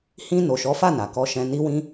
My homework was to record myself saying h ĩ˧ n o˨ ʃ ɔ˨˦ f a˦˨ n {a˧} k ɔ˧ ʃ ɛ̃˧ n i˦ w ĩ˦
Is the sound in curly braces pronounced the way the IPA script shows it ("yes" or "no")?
no